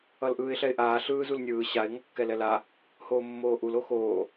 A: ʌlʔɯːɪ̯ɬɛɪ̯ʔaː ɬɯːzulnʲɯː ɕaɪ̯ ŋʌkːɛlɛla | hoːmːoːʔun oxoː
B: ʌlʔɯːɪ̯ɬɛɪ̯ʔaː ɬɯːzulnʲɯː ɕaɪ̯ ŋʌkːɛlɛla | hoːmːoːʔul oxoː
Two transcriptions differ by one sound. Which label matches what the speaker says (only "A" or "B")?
B